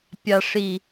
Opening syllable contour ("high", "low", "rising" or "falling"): high